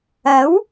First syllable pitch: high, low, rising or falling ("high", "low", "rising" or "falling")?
rising